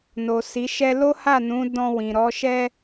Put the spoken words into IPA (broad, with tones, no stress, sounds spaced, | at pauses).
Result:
n o˨ s i˨˦ ʃ ɛ˦ l o˦ h a˦˨ n ũ˨˦ d ɔ̃˧ w ĩ˨ ɾ ɔ˨˦ ʃ ɛ˦